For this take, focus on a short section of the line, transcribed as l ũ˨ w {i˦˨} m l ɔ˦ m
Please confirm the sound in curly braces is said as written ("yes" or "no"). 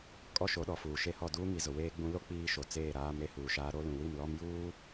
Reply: yes